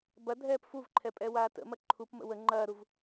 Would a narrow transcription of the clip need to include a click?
yes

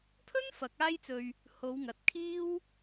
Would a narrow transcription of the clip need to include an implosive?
no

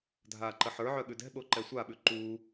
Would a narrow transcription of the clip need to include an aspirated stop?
no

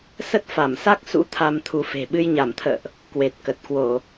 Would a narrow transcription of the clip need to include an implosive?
yes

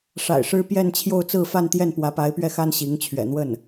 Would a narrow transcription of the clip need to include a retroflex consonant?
yes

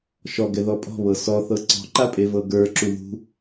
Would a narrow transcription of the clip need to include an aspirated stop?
no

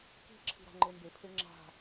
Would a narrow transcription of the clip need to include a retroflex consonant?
no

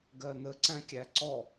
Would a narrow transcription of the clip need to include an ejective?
no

